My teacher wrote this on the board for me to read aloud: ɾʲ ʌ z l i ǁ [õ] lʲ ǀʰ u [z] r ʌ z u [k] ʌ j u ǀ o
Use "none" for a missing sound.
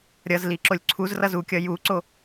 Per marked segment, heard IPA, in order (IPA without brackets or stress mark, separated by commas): o, z, kʲ